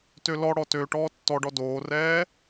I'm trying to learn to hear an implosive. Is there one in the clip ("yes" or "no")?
no